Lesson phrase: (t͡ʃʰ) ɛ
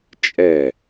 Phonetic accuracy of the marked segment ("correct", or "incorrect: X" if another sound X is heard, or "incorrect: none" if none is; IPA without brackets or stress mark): incorrect: t͡ʃʼ